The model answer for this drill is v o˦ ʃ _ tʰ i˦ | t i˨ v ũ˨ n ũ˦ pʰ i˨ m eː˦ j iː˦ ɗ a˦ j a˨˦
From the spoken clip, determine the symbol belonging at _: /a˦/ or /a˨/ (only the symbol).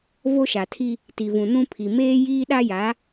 a˨